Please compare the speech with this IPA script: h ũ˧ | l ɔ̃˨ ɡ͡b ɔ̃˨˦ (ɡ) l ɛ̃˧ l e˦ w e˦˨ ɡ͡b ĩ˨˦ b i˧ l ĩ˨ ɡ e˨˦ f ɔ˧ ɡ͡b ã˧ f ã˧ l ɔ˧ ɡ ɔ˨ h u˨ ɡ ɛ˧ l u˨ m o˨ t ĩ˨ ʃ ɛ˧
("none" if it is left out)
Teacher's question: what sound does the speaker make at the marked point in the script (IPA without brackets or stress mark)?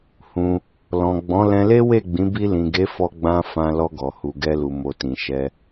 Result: none